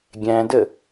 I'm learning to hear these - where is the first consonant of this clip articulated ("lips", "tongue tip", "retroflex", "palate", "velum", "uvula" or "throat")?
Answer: velum